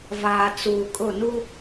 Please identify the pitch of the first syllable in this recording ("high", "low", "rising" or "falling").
low